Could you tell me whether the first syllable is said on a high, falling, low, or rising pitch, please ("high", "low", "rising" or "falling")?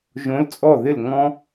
rising